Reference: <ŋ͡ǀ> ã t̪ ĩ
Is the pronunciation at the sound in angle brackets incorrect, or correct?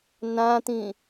incorrect